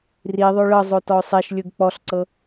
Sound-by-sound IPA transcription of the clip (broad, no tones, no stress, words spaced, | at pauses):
riðˤo ɭɤ zˤotɔʊ̯sˤeʃlʲɯɡ k͡pɔɬǀɤ